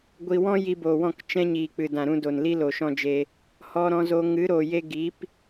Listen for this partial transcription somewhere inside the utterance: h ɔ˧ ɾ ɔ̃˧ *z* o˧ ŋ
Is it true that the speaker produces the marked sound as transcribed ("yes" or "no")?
yes